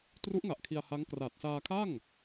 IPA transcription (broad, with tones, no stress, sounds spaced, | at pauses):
t r u˦˥ ʔ ŋ a˨˩ ʔ kʰ i˧ a̯ h a˦˥ ŋ k r aː˨˩ t̚ s aː˧ kʰ a˥˩ ŋ